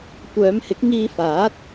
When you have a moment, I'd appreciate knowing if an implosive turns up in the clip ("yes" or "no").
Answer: no